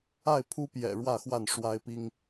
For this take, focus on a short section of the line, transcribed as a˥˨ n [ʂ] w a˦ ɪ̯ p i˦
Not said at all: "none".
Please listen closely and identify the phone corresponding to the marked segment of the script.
ʂ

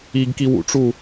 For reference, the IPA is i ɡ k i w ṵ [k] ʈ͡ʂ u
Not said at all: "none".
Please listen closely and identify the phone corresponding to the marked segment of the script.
none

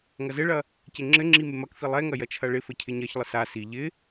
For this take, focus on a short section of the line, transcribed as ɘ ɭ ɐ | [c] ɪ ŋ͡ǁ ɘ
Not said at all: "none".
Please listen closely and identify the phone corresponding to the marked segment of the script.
c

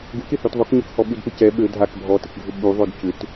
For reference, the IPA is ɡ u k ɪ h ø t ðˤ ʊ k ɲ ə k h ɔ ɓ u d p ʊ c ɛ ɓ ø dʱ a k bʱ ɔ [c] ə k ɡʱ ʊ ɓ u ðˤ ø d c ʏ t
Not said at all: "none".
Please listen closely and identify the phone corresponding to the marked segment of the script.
t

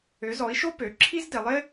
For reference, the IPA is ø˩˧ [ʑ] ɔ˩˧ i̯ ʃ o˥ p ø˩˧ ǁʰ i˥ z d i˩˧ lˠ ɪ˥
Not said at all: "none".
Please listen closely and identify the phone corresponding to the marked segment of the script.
z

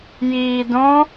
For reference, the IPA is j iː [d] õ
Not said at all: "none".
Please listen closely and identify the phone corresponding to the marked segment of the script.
d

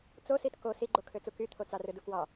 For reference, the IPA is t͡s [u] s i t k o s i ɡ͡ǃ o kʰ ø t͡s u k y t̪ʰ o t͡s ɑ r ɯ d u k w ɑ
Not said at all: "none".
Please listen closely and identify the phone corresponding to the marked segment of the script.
o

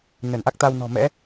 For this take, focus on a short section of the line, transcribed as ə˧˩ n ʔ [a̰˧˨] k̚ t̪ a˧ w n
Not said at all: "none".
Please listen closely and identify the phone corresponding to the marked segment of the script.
a˦˥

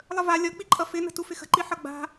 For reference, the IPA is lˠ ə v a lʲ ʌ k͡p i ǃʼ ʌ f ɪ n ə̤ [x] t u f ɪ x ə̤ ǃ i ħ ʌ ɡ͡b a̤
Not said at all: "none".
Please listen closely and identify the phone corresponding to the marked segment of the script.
none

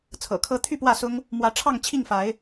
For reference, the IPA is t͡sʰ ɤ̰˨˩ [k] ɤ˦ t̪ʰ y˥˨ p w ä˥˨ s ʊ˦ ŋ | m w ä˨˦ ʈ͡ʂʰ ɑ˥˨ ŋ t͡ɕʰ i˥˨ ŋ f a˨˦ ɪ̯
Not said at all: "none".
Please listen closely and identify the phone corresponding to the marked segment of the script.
kʰ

